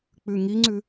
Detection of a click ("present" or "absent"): present